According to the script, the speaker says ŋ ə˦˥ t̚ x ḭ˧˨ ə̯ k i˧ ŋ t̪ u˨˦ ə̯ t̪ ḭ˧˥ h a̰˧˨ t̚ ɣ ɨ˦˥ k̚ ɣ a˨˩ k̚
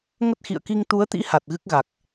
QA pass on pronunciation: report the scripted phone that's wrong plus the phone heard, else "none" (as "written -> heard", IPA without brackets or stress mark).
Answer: a̰˧˨ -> a˨˩